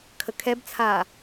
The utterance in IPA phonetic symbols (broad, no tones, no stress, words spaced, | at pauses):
kʰəkʰɛbt͡sʰaː